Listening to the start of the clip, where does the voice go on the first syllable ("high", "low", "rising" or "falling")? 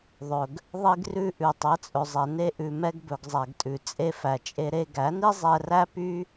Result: low